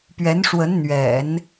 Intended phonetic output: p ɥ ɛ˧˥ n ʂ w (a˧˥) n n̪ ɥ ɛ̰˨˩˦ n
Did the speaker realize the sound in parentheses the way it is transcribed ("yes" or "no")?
no